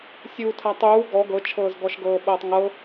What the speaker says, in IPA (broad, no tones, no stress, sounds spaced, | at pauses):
sʲ uː tʰ a tˤ uː ɡ ɔ ɡ ɤ t͡ʃʰ ɤː z ɡ ɔ ʃ ɡ ɤː ɓ ɤː tˤ ŋ ɤ